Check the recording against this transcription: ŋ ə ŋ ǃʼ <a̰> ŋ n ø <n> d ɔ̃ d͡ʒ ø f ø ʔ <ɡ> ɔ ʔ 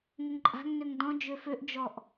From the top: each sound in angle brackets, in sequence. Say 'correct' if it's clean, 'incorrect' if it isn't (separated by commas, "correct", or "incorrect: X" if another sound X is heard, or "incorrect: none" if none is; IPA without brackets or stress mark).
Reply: incorrect: a̤, incorrect: ŋ, incorrect: d͡ʒ